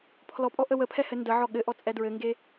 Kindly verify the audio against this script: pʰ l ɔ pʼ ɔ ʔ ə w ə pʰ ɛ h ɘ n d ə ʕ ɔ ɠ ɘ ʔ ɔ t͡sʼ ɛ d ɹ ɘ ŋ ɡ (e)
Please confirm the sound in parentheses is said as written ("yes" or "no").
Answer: yes